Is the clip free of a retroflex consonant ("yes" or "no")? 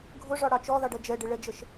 no